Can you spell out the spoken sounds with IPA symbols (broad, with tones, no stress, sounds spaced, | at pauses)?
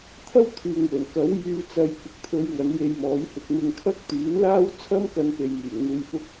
t̪ʰ ɐ˥ w t̪ʰ yː˨ ŋ w ɵ˨˩ n k ɐ˨˥ w j yː˧ t͡s ɐ˧ j k ɪ˨ k̚ t̪ʰ ɵ˨˧ ɥ ŋ ɐ˨˥ n j e˧ j m ɔː˨˥ j h ɪ˧ k̚ m ɪ˧ ŋ kʰ ɐ˥ k̚ t̪ yː˨˥ n l aː˥ w t͡sʰ ɐ˥ m k ɐ˧ n p e˨ j m yː˨˩ ŋ n̪ uː˨ j f ʊ˧ k̚